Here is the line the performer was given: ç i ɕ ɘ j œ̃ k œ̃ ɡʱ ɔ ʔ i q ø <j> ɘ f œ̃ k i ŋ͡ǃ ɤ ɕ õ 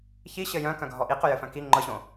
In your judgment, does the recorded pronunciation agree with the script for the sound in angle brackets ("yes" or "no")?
yes